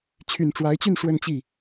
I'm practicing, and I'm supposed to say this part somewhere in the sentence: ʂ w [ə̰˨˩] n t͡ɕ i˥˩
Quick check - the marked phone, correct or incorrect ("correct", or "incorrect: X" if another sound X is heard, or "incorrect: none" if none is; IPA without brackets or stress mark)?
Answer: incorrect: ə˥˧